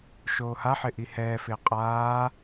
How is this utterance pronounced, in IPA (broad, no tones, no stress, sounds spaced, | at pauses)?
ʃ oː h a ħ ɪ ʔ i h ɛː f ɪː qʼ aː